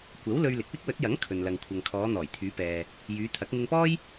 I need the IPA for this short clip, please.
kʷ ɐ˨˥ w l ɵ˧ ɥ l ɪ˨ k̚ w ɪ˥ k̚ w ɵ˨˥ t̚ j ɐ˨˥ ŋ kʰ ɵ˨ n l ɐ˨ ŋ kʷʰ ɐ˨ ŋ kʰ ɔː˨˧ n̪ ɔː˨˩ j t̪ʰ yː˨˧ p ɛː˨ | j yː˨˧ t̪ʰ ɐ˨˥ k̚ ŋ ɪ˧ ŋ p ɔː˥ j

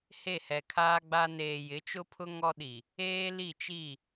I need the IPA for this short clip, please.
h e˦˨ h ɛ˨ kʰ aː˦ ɡ͡b a˦ n eː˨ j ɪ˨˦ t͡ʃ ʊ˦ pʰ ʊ˦ ŋ ɔ˦ ɗ i˨ | eː˦ l i˦˨ t͡ʃ i˦˨

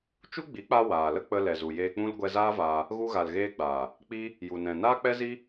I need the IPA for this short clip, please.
t͡ʃ u˦ ɡ͡b i˨˦ k͡p a˧ w aː˨ l ə˦ k͡p ə˧ l ɛ˨ z u˨ j eː˧ k͡p ũ˦ l ɡʷ ɛ˧ z aː˦ v aː˧ | ɣ u˧ ɣ a˨ l ɣ eː˧ ɡ͡b aː˨ | k͡p i˦ | j u˨ n ɛ̃˨ n aː˦ k͡p ɛ˦ z i˦

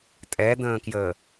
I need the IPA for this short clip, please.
tʼ ɛ d̪ ə̃ː k j ə

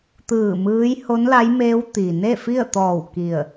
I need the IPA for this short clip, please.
t̪ ɯː˧˩ m ɯː˧˥ j h o˧˥ n l a˧˥ j m eː˧˥ w t̪ i˩ n e˥˨ f i˥˨ ə̯ t̪ ɔː˧˩ w k i˧˩ ə̯

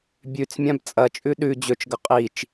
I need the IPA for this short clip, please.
bʲ ʉ t͡s mʲ ã b t͡sʼ ɐ t͡ʃʼ ʉ ɗ ʉ d͡ʑ ɵ t͡ʃ ɡ ɐ qʼ i t͡ʃ

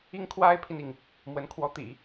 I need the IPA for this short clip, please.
i˥ ŋ kʰ w a˥ ɪ̯ pʰ i˨ n i˩ ŋ | m w ə˧˥ n kʰ w ɔ˧˥ t̪ ḭ˨˩˦

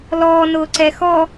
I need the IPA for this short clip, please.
l ɔː n ʊː ǀ ɛ x ɔ

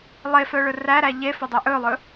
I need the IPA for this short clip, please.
lˠ e f œ ɭ ɵ r æ ɾ æ ʎ e f œ dˤ ɵ ʔ ɵ lˠ ɵ

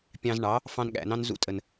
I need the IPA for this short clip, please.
pʲ ɑ̃˧ z ɳ ɑ˨˦ | f ɑ̃˧ n ɠ æ̰˨ n ɑ̃˦ n z ṵ˧ tʼ ə˨ n

